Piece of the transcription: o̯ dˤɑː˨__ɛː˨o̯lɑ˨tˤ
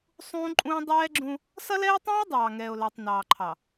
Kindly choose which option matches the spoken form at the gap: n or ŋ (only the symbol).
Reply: ŋ